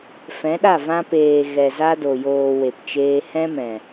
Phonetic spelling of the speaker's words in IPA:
f ɛ̃˨˦ ɗ a˦˨ v ã˧ p eː˨ ɣ ɛ˨ z a˦ d o˨ j oː˨ w e˨ p t͡ʃ eː˧ h ɛ̃˦ m ɛ̃˨

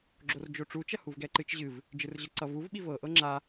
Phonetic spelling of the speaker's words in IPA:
ɡ͡ǁ o r d͡ʒ o ʈ͡ʂ u t͡ʃ ɐ h u v ɡ ɛ ǃ ɨ t͡ʃ ʑ ɨ v | d͡ʒ ɨ r ʑ ɤ ǀ ʌ v u v ɓ i v ɤ ʔ ɤ ŋ͡ǁ a

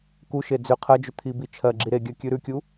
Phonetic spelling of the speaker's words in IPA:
k u ʃ e d͡z ʏ qʰ ɜ d͡ʒ ʏ t̪ʰ i b i t͡ʃʰ ɜ ɡ͡ǁ i ɾ e ɡʲ ɜ kʲ ʉ ɾ ʉ kʲ u

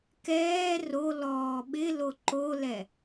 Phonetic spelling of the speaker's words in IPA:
k ɛː r o l ɔː ɓ ɪ l o ǃ o l ɛ

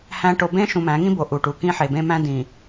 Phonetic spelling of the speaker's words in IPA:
h æ̃˨ ʈ o˨ b ẽ˦ ʃ ũ˨ m æ̃˨˦ ŋ ĩ˦ b o˨ ʔ u˨ ʈ u˨ k ĩ˦ ħ e˨ b ẽ˦ m æ̃˦ d ĩ˨

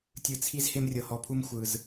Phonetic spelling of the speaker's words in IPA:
tʲ ɯ˨ t͡sʰ i˦ z h e˦ m rʲ ɤ˨ h ɔ˨ pʰ u˦ m xʷ ɯ˨ z

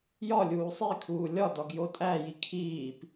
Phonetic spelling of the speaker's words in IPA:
j ɒ lʲ uː sˤ i kʰ uː lʲ ɒ d ɒ ɡ j o tʼ æ j i kʰ iː p

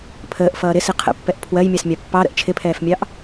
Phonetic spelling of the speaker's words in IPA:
pʰ əː ʔ f ʌː ɾ ɪ s i qʰ ə̰ pː ɛ ʔ pʰ w ɜ j mʲ ɑ s mʲ ɑ pː ɑ ɾ ə̰ ʔ t͡ʃʰ ɪ pʰ ɛː f mʲ ɑ ʔ

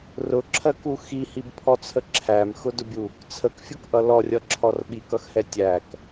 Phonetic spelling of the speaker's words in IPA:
r ʊ ǁʰ ɜ k u x i h i b pʰ ɔ t͡sʰ ə ǁʰ æ m x ʊ d ʊ bʲ u | t͡sʰ ə k fʲ ʊ k ʔ ʌ l ɔ rʲ ʌ ǁʰ ɔ r ɓ i k ʌ x h ɛ tʲ æ k

